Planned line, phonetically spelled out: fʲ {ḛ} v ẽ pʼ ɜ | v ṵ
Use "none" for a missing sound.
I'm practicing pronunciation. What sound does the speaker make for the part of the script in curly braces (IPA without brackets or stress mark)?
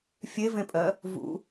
e